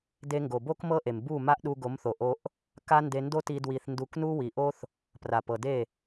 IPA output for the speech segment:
d e˧ ŋ ɡ o˨ b o˦ k m ɤ˦ ʔ e˨ m b u˦˨ m a˦ ʔ ɗ u˧ ɡ o˨˦ m θ o˨ ʔ o˧ ʔ | k a˦ n d e˧ n d o˦ t i˧ d w i˧ θ n d u˧ k n u˦ w i˨ ʔ o˦ θ | p r a˨ p ɤ˨ d e˦˨

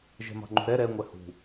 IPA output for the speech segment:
ʒ ɛ̤ m ɑ̤ ŋ͡ǃ ṳ ɾ ɛ ɾ ɛ ŋʷ ɛ h ṳ

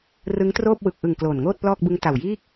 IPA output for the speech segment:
r ɯ˦˥ ŋ t r oː˥˩ p̚ w ɯ˨˩ k̚ ʔ ɯ˨˩ ŋ k l oː˨˩ n ŋ oː˥˩ t̚ p l ɔː˥˩ k̚ b ɯ˦˥ ŋ t a˨˩ w j iː˥˩ k̚

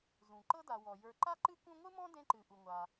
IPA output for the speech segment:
z ũ˩ ǃ ɤ˥ d a˨ w ɔ˩ j ə˞˨ ǃ a˥ ǃ ɨ˥ k ũ˦ ŋʷ ɨ˥ m ɔ̃˥ d ẽ˥ ǃ ɨ˨ ʔ u˨ ŋʷ a˨

